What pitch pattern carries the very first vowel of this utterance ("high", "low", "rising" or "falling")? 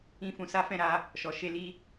high